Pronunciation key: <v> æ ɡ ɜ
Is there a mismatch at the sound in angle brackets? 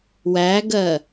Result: yes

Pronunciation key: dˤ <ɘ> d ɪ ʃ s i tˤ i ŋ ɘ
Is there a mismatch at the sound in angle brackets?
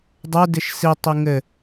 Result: yes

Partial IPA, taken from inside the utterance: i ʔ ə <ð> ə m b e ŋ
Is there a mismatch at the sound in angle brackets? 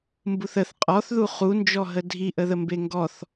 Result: no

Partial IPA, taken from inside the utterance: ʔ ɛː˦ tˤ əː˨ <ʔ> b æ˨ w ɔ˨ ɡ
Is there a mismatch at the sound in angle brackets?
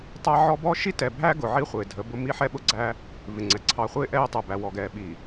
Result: yes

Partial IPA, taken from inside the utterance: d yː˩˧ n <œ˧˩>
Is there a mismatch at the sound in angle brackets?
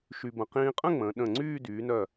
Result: no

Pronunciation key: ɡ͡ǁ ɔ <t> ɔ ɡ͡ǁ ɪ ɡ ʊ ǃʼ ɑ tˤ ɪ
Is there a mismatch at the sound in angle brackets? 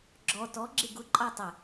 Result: no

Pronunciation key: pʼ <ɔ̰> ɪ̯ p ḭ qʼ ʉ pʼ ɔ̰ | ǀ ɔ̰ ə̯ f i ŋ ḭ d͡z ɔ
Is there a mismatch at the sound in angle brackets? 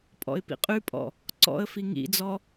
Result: no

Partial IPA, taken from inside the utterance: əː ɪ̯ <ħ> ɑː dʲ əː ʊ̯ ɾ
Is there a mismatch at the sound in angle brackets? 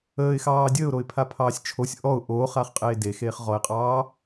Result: yes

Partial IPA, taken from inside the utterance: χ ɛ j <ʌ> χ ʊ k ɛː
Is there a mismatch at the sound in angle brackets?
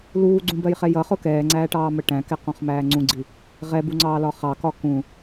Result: no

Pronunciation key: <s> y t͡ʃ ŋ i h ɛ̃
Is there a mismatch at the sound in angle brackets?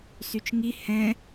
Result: no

